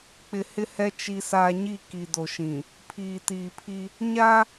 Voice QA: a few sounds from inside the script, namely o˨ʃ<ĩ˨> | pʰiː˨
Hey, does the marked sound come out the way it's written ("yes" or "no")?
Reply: yes